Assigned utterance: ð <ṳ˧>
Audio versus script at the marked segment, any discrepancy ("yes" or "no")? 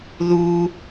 yes